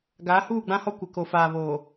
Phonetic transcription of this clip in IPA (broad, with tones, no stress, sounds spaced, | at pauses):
ɡ aː˨˦ h uː˦˨ ɡ͡b ã˦ h ɔ˦ kʷ ɪ˨ k o˨ f aː˨ β oː˨